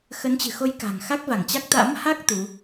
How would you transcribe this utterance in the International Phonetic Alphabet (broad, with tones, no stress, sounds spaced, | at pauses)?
x ə˨˦ n t͡ɕ ɨ̤˨˩ x o˧ j k a̤˨˩ ŋ x a˦˥ k̚ v a˧˩ ŋ t͡ɕ a˦˥ k̚ t̪ a̰˧˥ m h a˦˥ k̚ t̪ u˨˦